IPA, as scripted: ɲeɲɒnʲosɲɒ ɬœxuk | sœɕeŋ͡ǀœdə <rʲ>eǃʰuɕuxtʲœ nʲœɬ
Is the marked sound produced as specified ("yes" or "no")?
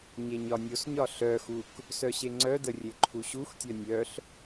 yes